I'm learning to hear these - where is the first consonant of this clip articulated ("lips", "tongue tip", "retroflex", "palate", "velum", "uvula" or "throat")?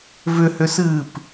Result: lips